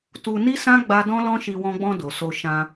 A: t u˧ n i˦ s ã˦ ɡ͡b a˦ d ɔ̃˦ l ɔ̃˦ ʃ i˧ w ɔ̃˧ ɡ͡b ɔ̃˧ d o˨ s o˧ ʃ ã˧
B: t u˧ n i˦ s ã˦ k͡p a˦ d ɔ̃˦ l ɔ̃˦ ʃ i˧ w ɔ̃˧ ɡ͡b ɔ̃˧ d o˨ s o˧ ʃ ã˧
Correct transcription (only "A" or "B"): A